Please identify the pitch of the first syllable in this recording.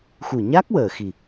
low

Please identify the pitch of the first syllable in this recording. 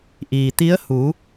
low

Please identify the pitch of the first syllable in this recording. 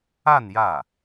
falling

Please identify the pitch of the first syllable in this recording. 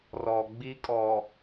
low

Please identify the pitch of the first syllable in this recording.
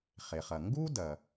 low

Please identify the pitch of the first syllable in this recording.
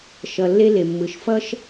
low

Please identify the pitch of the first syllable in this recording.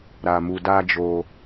low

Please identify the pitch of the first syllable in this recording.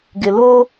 low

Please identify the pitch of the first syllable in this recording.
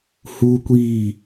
high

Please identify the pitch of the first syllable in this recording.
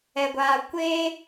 low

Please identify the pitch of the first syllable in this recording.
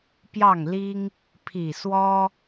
falling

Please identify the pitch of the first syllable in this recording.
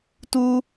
high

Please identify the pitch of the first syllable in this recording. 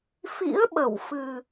rising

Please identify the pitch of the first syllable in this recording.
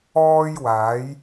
high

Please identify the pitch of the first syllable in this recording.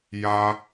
high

